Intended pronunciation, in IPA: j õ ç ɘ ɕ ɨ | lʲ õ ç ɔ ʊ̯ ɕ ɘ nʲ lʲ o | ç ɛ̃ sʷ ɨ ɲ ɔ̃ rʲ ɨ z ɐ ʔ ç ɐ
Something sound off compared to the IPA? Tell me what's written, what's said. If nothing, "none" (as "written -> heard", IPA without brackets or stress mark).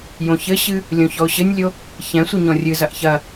none